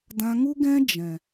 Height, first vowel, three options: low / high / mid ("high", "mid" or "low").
low